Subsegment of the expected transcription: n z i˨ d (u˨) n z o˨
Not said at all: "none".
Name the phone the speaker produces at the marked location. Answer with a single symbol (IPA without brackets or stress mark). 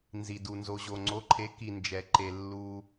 u˨